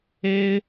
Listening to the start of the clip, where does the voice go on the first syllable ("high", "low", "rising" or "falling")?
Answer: high